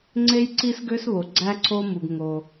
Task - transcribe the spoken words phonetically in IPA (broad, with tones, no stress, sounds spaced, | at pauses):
ŋ͡ǀ e˥ j ǀ i˥ s ɡ ø˥ s β o˩ ɡ͡ǀ æ˥ ǀʰ o˥ m u˩ ɡ ŋ o˩